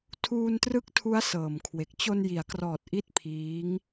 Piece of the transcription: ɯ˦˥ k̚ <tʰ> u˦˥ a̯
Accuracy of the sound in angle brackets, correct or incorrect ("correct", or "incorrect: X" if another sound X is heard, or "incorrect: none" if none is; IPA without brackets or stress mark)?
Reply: correct